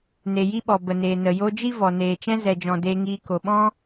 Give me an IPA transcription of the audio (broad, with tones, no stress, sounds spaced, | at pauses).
n e˨ j i˧ ɓ ɔ˨ b ə˨ n eː˨ n ə˨ j o˧ d͡ʒ i˦ v ɔ˨ n eː˨ t͡ʃ ɛ̃˧ z ɛ˨ d͡ʒ ɔ̃˨ d e˧ ŋ iː˧ k o˨ ɓ ɔ̃˦